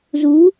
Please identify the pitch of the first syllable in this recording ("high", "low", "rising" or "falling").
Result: rising